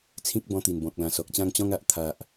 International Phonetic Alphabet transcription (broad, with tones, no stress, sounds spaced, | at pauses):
t͡sʰ ĩ˦ k̚ b ɔ̃˧ t̪ i˨˩ n b ɔ̃˨ k̚ l ã˨˩ s ɔ˨ k̚ t͡ɕ ã˥˧ ŋ t͡ɕ ɔ̃˦ ŋ a˨ ʔ t̪ʰ a˨ ʔ